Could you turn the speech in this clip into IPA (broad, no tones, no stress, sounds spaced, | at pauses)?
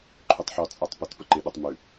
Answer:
ǃʰ ʉ tˤ ħ ɔ t͡sʼ a tˤ p ə t p ə ǃ ɪ ɗ ə tˤ m ʉ